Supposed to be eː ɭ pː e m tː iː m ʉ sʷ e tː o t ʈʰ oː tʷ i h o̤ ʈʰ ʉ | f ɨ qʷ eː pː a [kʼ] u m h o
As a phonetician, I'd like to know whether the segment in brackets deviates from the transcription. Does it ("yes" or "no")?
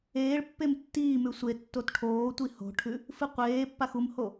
yes